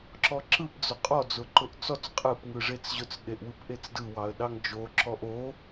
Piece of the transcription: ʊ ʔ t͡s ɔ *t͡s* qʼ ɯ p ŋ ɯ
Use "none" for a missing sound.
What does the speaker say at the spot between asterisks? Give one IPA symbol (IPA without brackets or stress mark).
t͡s